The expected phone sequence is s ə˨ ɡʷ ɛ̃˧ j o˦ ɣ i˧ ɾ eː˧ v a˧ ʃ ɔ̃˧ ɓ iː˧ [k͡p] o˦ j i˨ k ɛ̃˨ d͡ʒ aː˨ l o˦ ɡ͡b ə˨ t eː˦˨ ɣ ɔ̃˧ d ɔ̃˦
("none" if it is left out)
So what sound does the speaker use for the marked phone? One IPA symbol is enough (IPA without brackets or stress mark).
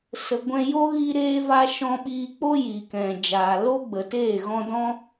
k͡p